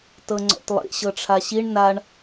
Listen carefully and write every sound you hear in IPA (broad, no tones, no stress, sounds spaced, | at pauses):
t ɤ ŋ͡ǀ ɔ̰ t lˠ ḭ ɕ ɤ ʈ͡ʂʰ a ɕ i ɳ n a ɳ